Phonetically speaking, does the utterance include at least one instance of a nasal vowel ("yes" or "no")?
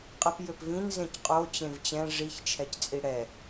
yes